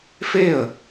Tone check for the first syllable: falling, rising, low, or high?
falling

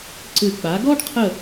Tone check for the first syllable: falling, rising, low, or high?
low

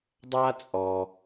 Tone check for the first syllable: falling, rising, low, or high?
high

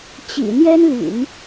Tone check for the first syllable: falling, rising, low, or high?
low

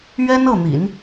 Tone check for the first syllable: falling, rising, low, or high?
high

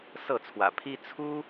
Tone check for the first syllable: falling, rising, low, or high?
falling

